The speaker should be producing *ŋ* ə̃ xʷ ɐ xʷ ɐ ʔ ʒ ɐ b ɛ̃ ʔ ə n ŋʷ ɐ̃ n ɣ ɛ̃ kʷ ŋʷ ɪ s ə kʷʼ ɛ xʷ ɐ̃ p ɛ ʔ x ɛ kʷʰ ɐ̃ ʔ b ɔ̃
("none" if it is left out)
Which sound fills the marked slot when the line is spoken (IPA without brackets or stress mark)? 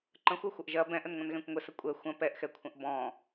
ǃ